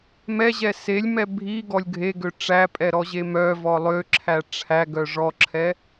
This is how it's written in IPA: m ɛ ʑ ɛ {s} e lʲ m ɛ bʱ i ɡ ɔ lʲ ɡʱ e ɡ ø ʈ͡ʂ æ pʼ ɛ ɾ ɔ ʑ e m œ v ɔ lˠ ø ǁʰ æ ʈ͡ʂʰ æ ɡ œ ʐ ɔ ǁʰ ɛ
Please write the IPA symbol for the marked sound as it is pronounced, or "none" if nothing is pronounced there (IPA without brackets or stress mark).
s